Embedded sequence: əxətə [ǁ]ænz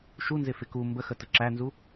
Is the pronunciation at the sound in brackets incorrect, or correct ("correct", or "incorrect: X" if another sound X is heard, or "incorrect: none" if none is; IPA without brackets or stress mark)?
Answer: correct